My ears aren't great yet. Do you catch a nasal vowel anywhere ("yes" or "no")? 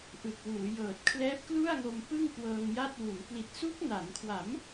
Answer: no